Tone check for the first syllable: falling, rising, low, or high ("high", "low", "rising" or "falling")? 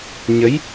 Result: rising